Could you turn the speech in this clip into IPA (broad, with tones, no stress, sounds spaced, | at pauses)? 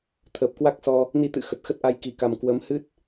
t̪ʰ əː˨˩ p̚ k w a˦˥ k̚ s ɔ˧ | n i˧ t̪ ɨ̰˧˨ x ə˨˩ t̚ x ə˦˥ t̚ ʔ a˧ j k i˨˦ k a˧ m k w ə˨˦ m h ɨ˦˥ t̚